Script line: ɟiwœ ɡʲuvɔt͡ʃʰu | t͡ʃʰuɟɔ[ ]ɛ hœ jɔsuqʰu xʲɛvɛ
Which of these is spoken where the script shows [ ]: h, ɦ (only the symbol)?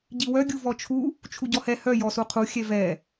h